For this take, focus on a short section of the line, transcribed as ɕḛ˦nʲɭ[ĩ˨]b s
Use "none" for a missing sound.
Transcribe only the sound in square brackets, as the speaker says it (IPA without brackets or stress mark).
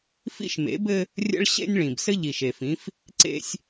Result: ĩ˨